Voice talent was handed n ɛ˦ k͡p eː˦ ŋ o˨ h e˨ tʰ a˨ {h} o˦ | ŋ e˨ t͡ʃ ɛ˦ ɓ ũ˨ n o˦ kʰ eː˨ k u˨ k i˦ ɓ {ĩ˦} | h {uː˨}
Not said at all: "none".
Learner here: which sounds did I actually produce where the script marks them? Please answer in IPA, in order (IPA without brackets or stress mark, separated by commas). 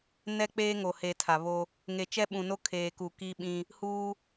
β, ĩ˦, uː˦